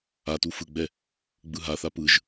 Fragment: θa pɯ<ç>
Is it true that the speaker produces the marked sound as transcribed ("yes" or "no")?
no